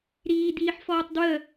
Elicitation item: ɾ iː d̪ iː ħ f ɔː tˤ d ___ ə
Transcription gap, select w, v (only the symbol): w